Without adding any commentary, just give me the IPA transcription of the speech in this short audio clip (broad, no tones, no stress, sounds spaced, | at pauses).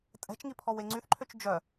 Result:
tʼ ɛ̤ t͡ʃ ŋ i pʰ ɔ w e ŋ͡ǀ y θ ǃʰ ø t͡ʃ d͡ʒ œ